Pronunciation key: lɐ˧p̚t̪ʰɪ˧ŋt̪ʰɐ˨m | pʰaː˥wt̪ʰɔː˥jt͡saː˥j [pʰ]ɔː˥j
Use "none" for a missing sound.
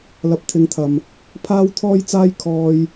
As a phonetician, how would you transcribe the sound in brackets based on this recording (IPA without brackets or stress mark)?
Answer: kʰ